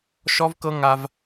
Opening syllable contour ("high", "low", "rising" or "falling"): high